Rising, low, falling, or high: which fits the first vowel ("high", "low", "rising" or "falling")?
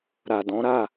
low